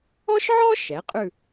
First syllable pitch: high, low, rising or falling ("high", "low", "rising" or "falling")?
high